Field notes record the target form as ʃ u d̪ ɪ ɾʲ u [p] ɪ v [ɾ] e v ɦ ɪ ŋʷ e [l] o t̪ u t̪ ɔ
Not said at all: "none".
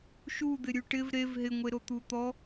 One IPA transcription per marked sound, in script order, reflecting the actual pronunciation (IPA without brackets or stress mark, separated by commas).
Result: ʈ, ɾ, ɾ